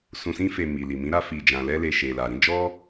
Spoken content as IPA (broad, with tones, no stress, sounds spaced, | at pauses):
s ũ˧ s ĩ˦ f e˧ m i˨ l i˨ m ĩ˨˦ ɾ a˦ f i˧ d͡ʒ ã˧ l ɛ˦ l e˧ ʃ e˨ l a˨ ɾ ĩ˨˦ d͡ʒ ɔ˦